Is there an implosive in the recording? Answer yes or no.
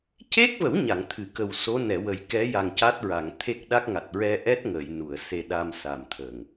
yes